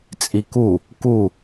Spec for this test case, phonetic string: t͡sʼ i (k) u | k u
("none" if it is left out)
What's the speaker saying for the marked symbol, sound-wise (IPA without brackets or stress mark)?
k